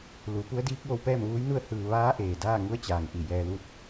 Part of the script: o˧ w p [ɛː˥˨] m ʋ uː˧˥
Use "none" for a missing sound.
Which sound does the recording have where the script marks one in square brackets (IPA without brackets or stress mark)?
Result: ɛː˥˨